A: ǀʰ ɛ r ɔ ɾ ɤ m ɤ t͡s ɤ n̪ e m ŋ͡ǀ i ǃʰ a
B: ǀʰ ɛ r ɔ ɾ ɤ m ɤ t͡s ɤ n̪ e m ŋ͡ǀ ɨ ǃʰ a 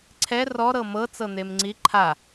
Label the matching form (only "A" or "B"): A